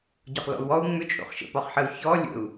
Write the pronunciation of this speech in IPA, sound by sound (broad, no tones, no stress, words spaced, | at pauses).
ɟɒχlɔ̰u̯wɔu̯ ŋ͡mʏt͡ʃʼo̰χ ʃə̰pɒχħəu̯ çɔ lʲə̰u̯